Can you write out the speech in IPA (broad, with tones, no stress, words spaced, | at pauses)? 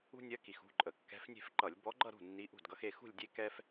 ṳ˥ nʲɜ˧˥ ki˨˩xṳ˥˧ ǃʼə˨˩ kːɛ̤˧˥fnʲe̤˥˧fǃʌ˧˩˧lʲ bɔ˧˥ɡ͡ǃʌ˥˧ɾṳ˥˩ nːi˧˥ʔṳ˥˩dɡʌ˧˥xe˥˧ xṳ˥˧lʲdʲe˥˧ kɛ˥f